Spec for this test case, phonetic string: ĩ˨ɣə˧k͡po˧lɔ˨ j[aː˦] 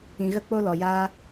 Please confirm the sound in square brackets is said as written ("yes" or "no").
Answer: yes